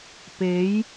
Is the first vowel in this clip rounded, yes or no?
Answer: no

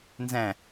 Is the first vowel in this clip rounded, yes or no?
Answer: no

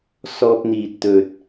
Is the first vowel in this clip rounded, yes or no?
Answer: yes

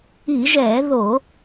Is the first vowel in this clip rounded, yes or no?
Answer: no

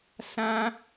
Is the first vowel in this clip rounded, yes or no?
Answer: no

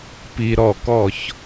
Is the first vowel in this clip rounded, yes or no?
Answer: no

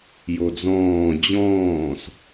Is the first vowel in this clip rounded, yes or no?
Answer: yes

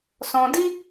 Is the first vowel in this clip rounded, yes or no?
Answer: yes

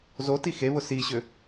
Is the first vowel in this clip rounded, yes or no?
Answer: yes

